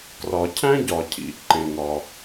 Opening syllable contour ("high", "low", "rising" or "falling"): low